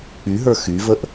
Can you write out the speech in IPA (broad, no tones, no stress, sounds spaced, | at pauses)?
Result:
k͡p y ɦ ə˞ x y v ə ʔ